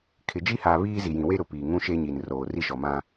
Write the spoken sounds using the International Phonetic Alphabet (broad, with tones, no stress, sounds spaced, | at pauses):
kʰ ɪ˨ d͡ʒ i˦ h aː˨ β iː˦ z i˨ j ĩ˨ w e˦ ɾ ʊ˨ p iː˨ ŋ ũ˦ ʃ e˦ ɲ i˨ n r oː˨ r i˦ ʃ ɔ˨ m ã˦